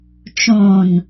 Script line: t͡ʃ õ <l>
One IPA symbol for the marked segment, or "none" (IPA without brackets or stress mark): n